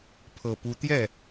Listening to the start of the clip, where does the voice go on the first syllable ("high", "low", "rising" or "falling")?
low